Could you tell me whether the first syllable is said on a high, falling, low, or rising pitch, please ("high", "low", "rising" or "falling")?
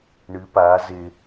rising